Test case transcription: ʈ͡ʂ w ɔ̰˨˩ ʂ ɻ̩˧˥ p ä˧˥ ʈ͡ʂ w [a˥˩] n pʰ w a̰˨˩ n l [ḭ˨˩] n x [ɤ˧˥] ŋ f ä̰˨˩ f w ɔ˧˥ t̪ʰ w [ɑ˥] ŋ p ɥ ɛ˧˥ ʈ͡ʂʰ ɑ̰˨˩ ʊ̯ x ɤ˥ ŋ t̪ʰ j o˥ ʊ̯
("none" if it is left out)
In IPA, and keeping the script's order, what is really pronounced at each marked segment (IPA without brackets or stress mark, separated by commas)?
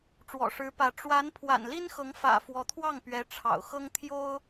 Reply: a˧˥, i˥, ɤ˧˥, ɑ˥˩